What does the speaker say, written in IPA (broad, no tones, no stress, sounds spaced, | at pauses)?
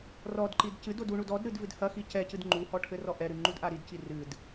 r ɔ d ǃ i d c ɨ d o d u ɳ u d ɔ d ɾ ɨ d v ɨ d h ɐ x i c ɛ c ɨ d ŋ͡ǃ u h ɔ ʈʰ ɘ r ɔ ʔ ɛ ɾ ɨ ŋ͡ǃ u d ʔ a ɾ i d c i r ɨ d